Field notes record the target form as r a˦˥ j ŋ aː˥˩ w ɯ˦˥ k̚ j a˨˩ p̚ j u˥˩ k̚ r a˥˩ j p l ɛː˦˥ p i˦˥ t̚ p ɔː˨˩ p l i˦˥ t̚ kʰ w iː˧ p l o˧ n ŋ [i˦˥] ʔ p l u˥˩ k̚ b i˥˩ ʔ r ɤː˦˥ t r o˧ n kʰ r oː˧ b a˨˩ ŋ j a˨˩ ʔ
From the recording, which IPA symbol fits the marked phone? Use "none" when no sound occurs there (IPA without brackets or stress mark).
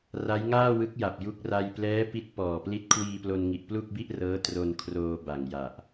i˨˩